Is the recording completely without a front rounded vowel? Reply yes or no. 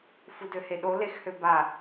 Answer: no